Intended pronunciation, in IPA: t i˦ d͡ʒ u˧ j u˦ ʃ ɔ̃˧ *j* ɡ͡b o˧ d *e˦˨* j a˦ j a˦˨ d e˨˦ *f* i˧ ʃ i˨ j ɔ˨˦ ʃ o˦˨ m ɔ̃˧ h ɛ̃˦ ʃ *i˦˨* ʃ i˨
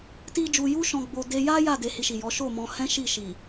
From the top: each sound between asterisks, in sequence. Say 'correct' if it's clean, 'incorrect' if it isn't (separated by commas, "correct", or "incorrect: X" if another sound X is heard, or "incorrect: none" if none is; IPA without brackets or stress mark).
incorrect: none, incorrect: e˧, incorrect: h, correct